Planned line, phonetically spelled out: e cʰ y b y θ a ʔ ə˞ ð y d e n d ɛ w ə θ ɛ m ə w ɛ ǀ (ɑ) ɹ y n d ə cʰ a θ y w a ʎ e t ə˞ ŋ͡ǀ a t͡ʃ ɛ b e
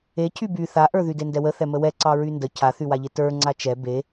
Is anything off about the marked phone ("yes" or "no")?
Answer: no